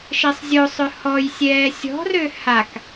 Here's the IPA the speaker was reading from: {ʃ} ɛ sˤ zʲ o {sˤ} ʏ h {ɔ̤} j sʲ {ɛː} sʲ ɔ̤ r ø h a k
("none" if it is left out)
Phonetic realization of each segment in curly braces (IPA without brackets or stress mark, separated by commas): ʃ, sˤ, ɔ, ɛː